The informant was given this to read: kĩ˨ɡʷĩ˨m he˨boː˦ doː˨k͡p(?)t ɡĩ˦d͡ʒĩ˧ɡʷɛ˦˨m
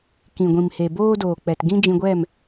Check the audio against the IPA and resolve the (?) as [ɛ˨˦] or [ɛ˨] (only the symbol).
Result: ɛ˨